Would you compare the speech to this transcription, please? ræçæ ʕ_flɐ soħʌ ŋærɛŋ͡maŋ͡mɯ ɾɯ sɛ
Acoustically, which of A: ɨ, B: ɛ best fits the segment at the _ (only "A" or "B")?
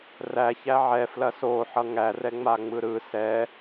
B